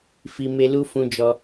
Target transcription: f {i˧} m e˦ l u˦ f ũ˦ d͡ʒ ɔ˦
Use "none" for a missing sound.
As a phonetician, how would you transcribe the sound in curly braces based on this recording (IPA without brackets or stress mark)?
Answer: i˧